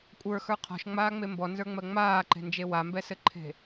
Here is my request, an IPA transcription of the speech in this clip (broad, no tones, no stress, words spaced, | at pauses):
kʷʼə˞xə˞ qʰɔ̤ʃŋ͡maːŋ͡me mbɔnzə˞ŋ͡mɜ ŋ͡maːǃe̤nd͡ʒe wambɛsɘǃʰe̤